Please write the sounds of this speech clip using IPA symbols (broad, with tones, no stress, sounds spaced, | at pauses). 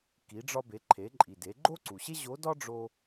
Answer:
k i˩˧ ɖ͡ʐ ɒ˧ b e˩˧ ǃʰ e˩˧ ǃʼ i˩ d e˩˧ ɡ͡ǃ o˥ ǀ u˩ ɕ e˥ ʑ o˧˥ d ɒ˥ ɖ͡ʐ o˧